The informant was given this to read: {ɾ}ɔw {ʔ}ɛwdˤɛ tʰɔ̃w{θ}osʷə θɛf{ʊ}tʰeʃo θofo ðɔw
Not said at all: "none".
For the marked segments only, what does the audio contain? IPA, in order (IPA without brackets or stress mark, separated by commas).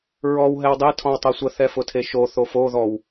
ɹ, ɦ, tˤ, ʊ